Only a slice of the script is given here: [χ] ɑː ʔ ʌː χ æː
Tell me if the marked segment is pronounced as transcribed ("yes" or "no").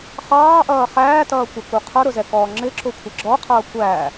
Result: yes